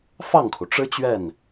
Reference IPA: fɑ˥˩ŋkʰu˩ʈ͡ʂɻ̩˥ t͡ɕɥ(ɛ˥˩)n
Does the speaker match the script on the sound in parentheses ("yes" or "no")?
yes